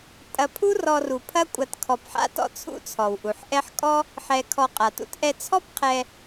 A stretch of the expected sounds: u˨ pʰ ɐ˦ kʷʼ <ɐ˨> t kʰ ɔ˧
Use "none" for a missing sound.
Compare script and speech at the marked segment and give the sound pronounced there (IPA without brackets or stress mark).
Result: ɐ˧